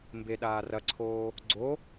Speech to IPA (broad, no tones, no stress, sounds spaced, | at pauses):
m b e ɗ aː r ɐ ǀʰ oː | ɡ͡ǀ o